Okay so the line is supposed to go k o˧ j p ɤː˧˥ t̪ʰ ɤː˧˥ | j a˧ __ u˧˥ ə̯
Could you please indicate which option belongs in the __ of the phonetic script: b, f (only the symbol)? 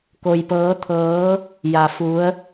f